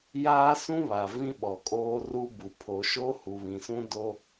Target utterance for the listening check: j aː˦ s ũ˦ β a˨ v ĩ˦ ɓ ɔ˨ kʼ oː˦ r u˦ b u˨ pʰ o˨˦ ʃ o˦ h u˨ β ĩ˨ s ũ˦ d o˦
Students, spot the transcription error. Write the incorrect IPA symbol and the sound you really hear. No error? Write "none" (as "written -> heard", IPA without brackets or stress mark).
none